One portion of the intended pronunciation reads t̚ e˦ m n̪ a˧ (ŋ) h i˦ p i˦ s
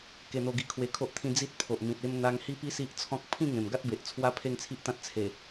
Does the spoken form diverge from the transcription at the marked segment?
no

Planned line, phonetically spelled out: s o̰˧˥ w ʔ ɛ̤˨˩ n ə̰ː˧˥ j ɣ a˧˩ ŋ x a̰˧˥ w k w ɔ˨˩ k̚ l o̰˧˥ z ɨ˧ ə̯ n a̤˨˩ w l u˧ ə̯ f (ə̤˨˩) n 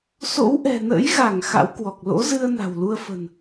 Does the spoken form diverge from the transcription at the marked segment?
no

